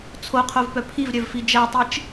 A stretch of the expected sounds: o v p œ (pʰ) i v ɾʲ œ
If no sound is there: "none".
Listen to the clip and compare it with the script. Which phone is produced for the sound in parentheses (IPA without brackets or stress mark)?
pʰ